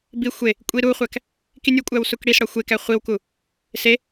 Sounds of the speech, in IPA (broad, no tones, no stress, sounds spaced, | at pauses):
b i xʷ e | kʷʼ i ɾ u χʷ æ k | k i nʲ u kʷʼ æ w s u k ɽ i s ɽ ɒ xʷ e k æ χʷ i w k u | s e